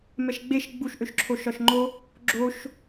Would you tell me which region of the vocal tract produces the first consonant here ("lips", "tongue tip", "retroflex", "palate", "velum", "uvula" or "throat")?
lips